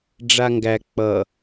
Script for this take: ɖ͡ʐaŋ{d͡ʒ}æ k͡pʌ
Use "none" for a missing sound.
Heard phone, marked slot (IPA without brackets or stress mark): ɡ